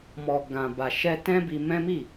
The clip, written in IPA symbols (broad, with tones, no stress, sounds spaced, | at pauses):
m ɔ˨ ɡ ã˨ b a˨ ʃ ɛ˧ t ɛ̃˦ b i˧ m ɛ̃˦ m i˦˨